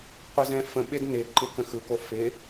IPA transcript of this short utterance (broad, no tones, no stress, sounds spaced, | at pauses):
qʷ ɪ z ɛ̃ f ə̃ ɓ ɪ d n ɪ ǃ ɪ k ə̃ x ɯ k o f ɪ